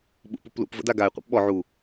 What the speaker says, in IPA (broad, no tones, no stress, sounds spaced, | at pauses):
ɓ ṵ p u p l ṵ p v ə̰ d a ɡ a e̯ qʷ ɛ̰ p ɓ ɔ ʕ u